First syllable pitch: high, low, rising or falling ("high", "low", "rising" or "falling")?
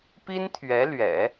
high